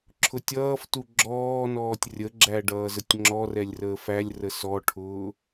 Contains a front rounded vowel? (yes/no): no